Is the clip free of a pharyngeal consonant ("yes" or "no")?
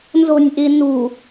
yes